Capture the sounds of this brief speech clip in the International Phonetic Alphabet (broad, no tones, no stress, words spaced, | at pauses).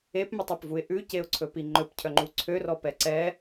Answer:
epmɵtˤɔpvuɪ̯ ʔʉceʊ̯ǀʰɵpi ŋ͡ǃɵpcʰœŋ͡ǃu ǀʰørɔ pɛǀɛ